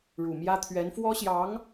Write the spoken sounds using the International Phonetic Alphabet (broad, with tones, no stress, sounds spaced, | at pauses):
ɻ u˨˩ m j ä˥ t̪ʰ ɥ ɛ˧˥ n f w ɔ˥ ɕ j ɑ˧˥ ŋ